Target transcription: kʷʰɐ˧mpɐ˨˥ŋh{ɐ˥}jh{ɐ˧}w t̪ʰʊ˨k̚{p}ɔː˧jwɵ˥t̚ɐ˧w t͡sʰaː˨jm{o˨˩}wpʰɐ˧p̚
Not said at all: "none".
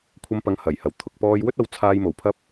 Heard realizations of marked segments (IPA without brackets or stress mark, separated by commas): ɐ˨˩, ɐ˨˩, p, o˨˩